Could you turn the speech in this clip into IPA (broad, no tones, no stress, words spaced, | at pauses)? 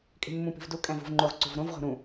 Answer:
kʼe̤mːũpi̤vdu kʼæ̃vṳvŋ͡ǃoʁ ǀṳvɾõv ʁo̤ɾũ